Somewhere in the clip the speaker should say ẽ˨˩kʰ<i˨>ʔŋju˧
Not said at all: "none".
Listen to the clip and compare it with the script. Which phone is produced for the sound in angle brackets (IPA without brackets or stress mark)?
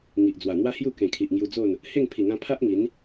i˨